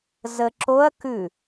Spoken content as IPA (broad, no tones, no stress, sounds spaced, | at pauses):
z ə ǁ o ɐ̯ k ʉ